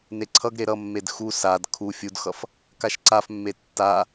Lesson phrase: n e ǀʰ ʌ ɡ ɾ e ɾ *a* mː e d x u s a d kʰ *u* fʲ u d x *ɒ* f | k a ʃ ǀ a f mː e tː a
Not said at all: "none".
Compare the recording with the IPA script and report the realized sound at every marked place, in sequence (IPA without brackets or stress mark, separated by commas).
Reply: ʌ, u, ʌ